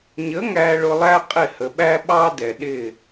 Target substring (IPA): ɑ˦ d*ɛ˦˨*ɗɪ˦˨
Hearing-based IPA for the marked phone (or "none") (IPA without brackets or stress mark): ɛ˨